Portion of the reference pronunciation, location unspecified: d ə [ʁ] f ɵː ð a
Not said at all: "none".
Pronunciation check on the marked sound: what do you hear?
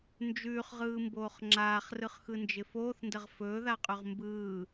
ʁ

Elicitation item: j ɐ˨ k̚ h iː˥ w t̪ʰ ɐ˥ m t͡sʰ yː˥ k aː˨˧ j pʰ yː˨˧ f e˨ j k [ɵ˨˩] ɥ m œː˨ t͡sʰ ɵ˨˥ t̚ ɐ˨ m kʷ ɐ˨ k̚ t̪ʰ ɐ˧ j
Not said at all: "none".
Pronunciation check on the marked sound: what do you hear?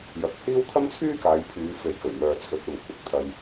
ɵ˨˩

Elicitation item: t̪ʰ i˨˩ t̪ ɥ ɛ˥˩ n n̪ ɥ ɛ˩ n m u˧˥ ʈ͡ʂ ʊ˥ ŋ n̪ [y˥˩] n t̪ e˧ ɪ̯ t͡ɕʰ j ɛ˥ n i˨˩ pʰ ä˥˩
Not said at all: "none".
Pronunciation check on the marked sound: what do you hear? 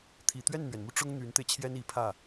y˧˥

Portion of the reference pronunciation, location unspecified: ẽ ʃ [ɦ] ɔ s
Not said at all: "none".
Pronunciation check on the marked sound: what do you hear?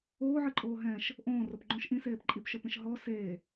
ɦ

